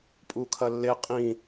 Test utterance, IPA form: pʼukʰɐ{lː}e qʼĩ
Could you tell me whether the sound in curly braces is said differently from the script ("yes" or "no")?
no